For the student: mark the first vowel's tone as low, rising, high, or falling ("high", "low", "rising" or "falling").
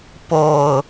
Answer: low